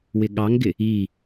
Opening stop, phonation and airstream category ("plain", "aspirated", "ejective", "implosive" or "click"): implosive